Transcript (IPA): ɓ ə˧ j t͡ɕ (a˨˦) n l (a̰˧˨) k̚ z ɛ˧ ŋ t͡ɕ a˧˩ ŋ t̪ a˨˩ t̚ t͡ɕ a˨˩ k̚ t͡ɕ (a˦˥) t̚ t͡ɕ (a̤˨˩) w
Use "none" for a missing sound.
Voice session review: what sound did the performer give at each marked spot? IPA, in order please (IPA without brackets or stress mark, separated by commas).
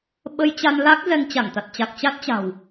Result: a˧, a˦˥, a˦˥, a̤˨˩